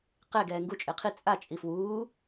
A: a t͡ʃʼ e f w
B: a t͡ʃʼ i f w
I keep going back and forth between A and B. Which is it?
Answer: B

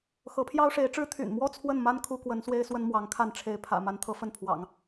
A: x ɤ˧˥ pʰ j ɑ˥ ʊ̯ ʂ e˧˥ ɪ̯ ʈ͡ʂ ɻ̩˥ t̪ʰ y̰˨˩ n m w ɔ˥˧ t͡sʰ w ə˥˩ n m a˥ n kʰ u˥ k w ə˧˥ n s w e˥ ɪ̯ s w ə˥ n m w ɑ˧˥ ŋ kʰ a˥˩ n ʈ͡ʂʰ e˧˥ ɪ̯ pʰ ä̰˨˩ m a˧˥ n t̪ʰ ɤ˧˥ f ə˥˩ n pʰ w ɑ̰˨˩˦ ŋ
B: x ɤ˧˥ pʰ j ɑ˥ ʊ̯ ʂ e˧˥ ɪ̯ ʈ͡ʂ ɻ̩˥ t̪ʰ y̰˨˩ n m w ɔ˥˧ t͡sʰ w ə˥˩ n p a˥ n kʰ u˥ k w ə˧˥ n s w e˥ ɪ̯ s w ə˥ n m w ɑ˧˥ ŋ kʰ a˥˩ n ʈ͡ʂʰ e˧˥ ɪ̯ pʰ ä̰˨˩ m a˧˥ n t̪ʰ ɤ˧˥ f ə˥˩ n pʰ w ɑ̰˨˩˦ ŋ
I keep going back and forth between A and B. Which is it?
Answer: A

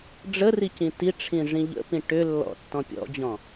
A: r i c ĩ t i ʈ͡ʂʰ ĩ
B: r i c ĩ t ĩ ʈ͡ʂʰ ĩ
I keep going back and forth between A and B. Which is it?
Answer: A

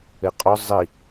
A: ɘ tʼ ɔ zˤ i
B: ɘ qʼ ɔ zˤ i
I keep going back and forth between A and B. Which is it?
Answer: B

